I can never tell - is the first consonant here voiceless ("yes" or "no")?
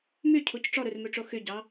no